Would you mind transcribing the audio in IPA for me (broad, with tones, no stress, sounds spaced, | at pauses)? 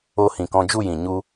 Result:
o˧ h ĩ˨ k ɔ̃˧ d͡ʒ u˦˨ j ĩ˨ ɲ u˧